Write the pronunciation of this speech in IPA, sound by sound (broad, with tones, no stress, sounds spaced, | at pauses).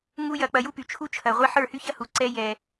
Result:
ŋ u˦ j ɐ˧ k͡p ɐ˧ j u˦ p y˨ t͡ʃʰ u˦ t͡ʃʰ ɐ˨ ʁʷ e˦ ħ ə˞˦˨ h y˦ ç ɐ˦ h u˨ ǀ ɛ˧ j ɛ˨